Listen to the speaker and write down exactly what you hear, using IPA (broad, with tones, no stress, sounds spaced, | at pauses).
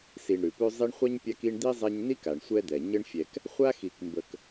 s i˨ ɳ ɾ ʉ˩ p ʉ˦ zˤ i˦ ɳ χʷ a˥ ɲ pʲ a˦ k i˦ ɳ d̪ i˥ zˤ ɛ˦ ɲ n i˥ k a˩ ɳ sʷ ɛ˦ d̪ ɛ˩ ɲ ə˦ ɳ fʲ ɛ˨ k | χʷ a˥ x i˨ k m b ə˨ k